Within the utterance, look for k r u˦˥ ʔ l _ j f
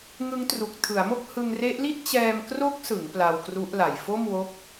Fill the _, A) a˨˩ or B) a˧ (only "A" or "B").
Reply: A